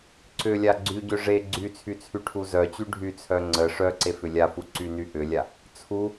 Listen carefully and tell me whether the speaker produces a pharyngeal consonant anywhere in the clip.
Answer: no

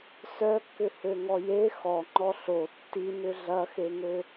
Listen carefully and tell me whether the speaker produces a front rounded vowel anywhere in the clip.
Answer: yes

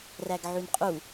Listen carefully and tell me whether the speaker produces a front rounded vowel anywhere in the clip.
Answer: yes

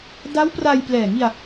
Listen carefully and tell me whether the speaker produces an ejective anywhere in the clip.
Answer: no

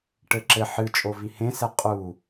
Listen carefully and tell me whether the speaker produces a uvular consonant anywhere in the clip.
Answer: yes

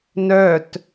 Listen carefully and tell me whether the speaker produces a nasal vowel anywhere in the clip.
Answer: no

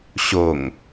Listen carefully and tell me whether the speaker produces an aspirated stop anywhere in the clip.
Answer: no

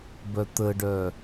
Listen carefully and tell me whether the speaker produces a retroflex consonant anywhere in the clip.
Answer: yes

